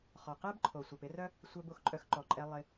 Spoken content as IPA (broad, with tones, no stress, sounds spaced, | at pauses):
χ ɔ˩ q ɛ˥ b ǃʰ o˩ sʷ œ˩ p ɪ˥ r œ˥ | sʷ œ˧ b o˩ x ǃʼ œ˧ x ǃ ɔ˩ ǃʼ ɛ˧ lˠ ɪ˧